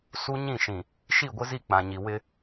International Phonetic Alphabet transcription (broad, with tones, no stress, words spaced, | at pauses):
su˦ɲĩ˦˨ʃĩ˨ | ʃi˦˨ɡʷɪ˦zi˦˨ k͡pã˨ɲi˨ wɪ˦